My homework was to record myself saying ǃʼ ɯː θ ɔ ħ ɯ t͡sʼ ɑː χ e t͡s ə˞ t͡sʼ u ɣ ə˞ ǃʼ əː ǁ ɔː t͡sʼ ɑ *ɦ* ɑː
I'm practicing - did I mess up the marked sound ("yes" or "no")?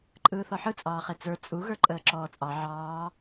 yes